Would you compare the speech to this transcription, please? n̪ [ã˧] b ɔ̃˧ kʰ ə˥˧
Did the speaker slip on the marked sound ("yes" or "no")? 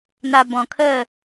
yes